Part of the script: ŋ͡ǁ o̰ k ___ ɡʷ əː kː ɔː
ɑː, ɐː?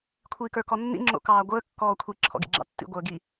ɑː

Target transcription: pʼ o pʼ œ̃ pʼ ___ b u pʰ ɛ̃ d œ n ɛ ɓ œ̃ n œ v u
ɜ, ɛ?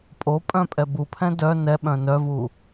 ɛ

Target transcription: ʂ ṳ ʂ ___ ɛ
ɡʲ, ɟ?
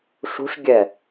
ɡʲ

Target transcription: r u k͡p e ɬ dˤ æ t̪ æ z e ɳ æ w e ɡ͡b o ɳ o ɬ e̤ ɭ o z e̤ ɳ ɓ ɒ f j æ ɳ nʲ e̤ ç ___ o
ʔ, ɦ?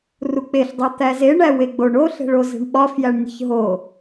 ɦ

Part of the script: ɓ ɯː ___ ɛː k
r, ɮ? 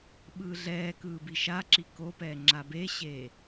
ɮ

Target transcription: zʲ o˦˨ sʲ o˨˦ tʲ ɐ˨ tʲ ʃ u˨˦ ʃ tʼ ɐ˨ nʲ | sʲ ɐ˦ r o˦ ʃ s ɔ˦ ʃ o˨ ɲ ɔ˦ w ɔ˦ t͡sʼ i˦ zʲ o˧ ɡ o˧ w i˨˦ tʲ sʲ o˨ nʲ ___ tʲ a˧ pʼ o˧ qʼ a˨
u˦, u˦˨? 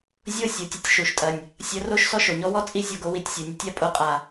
u˦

